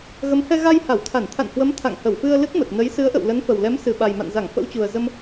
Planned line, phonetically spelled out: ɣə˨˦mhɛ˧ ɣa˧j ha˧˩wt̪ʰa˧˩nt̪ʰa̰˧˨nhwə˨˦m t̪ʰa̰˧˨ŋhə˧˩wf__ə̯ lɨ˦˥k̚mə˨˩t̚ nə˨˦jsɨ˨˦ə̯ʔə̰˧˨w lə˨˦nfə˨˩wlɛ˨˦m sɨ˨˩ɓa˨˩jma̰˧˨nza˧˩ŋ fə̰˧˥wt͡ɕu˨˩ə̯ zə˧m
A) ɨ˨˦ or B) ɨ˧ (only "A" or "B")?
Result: B